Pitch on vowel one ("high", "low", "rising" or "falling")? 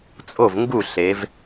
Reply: falling